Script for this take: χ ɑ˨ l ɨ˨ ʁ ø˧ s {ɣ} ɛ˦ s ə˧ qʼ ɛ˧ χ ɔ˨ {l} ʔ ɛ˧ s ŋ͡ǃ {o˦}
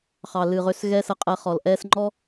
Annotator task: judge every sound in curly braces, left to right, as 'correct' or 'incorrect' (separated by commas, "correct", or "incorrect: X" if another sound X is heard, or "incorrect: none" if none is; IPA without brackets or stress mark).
correct, correct, incorrect: ɔ˦